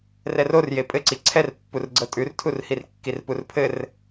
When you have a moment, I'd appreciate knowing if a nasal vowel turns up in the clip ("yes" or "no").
no